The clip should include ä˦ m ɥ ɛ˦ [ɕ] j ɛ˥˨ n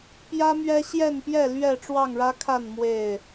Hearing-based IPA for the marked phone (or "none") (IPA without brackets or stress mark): ɕ